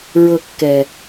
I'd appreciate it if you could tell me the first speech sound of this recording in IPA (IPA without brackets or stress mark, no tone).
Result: ɹ